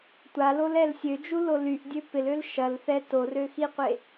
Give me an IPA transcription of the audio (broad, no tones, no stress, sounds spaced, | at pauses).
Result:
tʷ a l o l ɛ l sʲ ø d͡ʒ u l o l y ʔ dʲ ø p ɪ l ø l ʃ ɐ l θ ɛ t o r ø x i qʷ e